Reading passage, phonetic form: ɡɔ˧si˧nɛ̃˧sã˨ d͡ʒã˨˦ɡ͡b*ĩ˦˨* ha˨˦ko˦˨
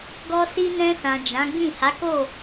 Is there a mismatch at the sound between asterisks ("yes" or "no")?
no